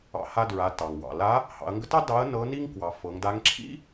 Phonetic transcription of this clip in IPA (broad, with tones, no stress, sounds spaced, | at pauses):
ɑ̰˧ h a˧ d ɹ a˩˧ t ɑ˩ ŋ w ɑ̰˩ l a˧˥ | h ɑ̰˩˧ ɐ̯ ŋ ɡ ə˧˥ t ɑ˥ d ɑ˧˥ ɐ̯ n ɤ˧˥ n i˥ ŋ k w ɑ˩˧ f ɤ˩˧ ŋ d a˧˥ ŋ ǁʰ ḭ˥